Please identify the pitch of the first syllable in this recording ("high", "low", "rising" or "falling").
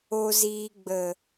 low